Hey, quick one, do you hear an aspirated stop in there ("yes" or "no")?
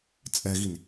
no